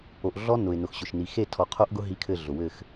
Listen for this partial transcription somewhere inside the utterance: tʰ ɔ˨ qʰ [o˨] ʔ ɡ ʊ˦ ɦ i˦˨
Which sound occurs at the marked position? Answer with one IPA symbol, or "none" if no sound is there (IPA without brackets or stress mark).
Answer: o˦